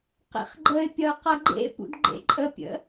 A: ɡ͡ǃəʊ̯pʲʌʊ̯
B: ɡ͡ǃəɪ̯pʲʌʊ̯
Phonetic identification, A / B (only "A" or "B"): B